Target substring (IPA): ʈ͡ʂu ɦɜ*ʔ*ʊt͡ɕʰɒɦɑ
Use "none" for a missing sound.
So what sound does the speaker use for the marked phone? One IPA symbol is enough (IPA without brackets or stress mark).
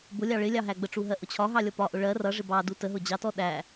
ʔ